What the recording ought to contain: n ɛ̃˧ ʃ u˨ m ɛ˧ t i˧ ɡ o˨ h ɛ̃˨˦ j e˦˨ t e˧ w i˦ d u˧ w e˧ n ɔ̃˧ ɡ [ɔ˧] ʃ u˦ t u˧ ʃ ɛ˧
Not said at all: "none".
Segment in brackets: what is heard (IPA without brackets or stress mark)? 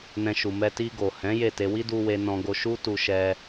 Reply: o˧